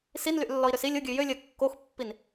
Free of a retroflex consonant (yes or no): yes